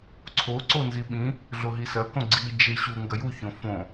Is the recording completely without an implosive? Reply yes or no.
no